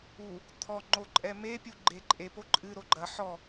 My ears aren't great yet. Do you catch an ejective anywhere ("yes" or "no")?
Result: yes